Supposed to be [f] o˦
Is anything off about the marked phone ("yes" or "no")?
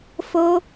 no